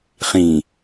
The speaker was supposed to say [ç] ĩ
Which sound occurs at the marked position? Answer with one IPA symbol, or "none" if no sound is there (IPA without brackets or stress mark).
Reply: χ